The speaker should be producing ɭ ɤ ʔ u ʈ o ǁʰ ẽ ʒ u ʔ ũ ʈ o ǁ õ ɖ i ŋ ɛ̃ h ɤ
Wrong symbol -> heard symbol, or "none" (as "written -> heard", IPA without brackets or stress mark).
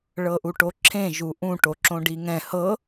none